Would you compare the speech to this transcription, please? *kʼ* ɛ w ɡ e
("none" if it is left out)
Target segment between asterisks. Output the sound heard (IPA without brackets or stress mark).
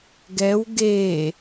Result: ɡ